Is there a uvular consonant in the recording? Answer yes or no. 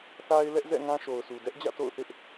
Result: no